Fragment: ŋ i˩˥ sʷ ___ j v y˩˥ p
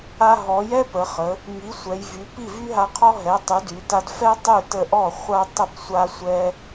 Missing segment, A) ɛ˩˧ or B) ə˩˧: A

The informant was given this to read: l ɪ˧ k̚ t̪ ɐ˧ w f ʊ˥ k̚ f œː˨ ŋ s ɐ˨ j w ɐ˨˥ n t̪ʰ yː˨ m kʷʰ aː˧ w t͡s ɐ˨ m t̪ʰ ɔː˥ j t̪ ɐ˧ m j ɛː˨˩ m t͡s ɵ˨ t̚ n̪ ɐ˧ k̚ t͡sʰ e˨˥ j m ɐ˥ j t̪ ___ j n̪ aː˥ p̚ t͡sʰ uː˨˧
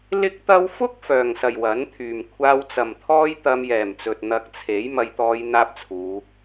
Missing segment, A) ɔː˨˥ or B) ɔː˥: B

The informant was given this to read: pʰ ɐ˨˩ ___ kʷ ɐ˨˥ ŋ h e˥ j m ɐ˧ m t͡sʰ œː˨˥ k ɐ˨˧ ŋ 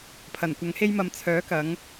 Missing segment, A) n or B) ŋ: A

